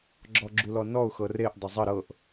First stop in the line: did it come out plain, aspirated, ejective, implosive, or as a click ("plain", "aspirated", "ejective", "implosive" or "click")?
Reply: click